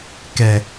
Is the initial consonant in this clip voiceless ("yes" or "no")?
yes